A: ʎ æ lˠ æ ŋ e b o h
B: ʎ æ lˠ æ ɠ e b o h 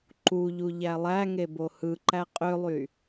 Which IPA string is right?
A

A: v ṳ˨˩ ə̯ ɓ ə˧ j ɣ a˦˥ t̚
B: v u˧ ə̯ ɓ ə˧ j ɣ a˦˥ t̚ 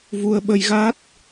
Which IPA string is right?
B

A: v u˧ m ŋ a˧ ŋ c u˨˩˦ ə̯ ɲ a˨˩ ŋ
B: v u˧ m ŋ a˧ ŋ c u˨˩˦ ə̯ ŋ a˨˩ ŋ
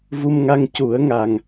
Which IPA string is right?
B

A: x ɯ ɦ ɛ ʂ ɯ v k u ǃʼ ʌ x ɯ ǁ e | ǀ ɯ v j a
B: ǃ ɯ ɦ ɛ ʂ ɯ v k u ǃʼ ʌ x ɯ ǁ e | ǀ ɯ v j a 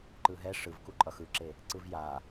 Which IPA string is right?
B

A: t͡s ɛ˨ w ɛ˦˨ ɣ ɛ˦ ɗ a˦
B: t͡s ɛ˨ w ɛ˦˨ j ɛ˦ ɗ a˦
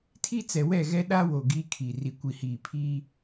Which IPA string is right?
A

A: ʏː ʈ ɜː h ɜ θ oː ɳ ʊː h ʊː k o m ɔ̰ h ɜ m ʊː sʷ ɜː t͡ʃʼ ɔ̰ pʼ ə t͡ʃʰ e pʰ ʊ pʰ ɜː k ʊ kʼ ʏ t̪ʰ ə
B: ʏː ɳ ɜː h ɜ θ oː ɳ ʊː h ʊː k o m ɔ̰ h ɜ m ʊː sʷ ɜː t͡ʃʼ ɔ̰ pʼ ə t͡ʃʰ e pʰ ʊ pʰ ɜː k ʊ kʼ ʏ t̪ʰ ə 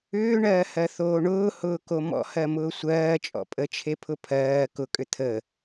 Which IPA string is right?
B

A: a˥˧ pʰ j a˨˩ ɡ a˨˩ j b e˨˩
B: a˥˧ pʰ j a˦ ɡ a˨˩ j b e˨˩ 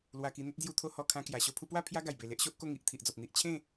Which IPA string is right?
B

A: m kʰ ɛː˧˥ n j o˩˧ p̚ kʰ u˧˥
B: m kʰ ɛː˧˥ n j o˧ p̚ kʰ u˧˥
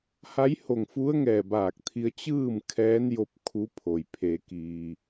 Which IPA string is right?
B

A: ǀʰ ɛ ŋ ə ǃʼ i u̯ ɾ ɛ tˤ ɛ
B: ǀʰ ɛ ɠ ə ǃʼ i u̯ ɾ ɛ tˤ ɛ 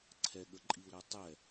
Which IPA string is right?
B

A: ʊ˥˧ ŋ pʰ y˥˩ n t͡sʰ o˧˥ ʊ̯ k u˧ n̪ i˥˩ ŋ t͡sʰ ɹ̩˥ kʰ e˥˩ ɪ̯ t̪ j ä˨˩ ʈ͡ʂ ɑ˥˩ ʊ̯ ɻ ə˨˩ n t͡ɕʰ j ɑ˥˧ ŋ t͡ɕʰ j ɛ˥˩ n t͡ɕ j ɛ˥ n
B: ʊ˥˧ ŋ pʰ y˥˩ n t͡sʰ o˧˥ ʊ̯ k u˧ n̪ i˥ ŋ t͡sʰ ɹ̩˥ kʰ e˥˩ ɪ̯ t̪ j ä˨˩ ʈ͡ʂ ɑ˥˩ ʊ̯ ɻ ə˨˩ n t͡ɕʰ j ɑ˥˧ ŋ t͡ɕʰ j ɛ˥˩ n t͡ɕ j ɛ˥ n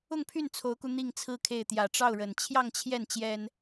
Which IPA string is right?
A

